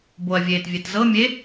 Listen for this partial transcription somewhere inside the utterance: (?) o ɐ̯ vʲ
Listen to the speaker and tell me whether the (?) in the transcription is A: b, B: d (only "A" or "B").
A